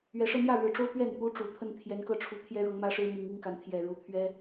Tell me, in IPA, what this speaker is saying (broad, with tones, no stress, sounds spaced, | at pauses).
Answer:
ɥ ɛ˨˩ ʂ ɤ˥˧ n̪ j ä˥˩ ɻ ɻ̩˨˩ ʈ͡ʂ o˥ ʊ̯ p ɥ ɛ˥˩ n p u˥ ʈ͡ʂ u˨˩ t̪ʰ ə˥˩ n t̪ʰ j ɛ˧˥ n k ɤ˥˩ ʈ͡ʂʰ u˧˥ t̪ʰ j ɛ˥ ɻ ɤ˧˥ ŋ m ä˥ ʂ ɻ̩˥ m i˧˥ ŋ i˥ ŋ k a˧˥ n t̪ʰ j ɛ˨˩ ɻ u˧˥ t̪ʰ ɥ ɛ˥